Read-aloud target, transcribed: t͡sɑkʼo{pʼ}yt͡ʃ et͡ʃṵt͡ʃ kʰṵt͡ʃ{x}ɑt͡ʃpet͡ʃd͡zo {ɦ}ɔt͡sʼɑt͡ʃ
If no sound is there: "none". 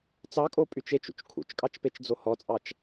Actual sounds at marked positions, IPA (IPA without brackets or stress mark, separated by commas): pʼ, kʼ, h